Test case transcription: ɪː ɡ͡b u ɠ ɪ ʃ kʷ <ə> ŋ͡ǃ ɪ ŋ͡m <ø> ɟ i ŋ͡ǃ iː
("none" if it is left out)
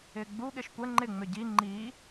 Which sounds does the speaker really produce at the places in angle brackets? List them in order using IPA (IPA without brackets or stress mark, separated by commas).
ə, ø